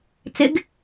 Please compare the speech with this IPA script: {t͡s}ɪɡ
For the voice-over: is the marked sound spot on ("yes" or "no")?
yes